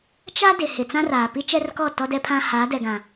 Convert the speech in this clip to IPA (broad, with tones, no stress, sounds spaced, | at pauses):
t͡ʃ a˦ d ɪ˨ h ɪ˨ t͡s ã˦ r aː˨ p i˦ t͡ʃ ɛ˦ r k ɔ˦˨ t ɔ˦ d ɛ˦ pʰ ã˦ h aː˨˦ d ɛ˨ ɡ ã˨